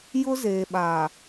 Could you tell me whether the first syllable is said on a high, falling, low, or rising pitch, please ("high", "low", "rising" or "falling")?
high